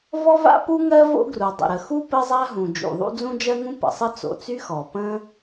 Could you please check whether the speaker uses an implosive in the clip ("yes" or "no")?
no